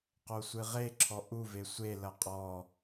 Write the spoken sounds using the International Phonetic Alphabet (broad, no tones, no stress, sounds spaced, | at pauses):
q o sʷ ɨ ʁ e ǁʰ ɔ ʔ u v e sʷ e l ɐ qʼ ɔ